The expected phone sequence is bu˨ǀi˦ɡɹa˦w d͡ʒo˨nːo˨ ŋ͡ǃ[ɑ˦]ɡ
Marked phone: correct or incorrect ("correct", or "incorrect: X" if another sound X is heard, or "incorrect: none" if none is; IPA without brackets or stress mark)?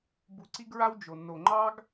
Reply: correct